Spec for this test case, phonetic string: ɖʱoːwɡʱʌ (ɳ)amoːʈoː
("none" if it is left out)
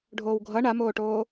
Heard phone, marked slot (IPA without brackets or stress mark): ɳ